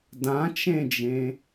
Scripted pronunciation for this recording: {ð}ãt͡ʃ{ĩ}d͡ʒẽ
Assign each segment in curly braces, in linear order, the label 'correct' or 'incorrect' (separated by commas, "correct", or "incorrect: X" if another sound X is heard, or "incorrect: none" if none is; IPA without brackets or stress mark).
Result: incorrect: d, incorrect: ẽ